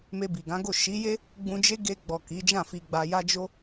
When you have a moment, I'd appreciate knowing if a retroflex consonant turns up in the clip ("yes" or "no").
no